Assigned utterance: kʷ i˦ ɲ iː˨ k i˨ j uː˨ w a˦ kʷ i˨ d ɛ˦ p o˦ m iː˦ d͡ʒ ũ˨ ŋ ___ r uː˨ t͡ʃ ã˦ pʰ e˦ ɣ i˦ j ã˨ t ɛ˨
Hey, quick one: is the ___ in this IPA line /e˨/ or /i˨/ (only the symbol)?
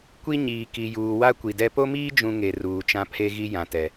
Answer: e˨